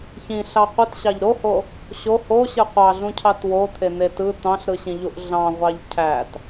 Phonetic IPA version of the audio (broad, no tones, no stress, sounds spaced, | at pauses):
ç ĩ ɬ ɑ qʷ ɯ t ɕ ɑ ʎ ɾ o h o | ɕ o h o ɕ ɯ qʷ ɑ ɮ ũ cʰ ɑ t w o t̪ʰ e n̪ e t ɯ t̪ ɑ̃ ɬ ɾ ɯ ɕ ĩ ʎ u ʔ ɮ ɑ̃ ʁʷ ɑ ʎ cʰ æ t